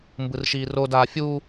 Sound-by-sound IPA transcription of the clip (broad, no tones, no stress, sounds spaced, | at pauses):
m b ɯ r ʃ iː r o d aː fʲ u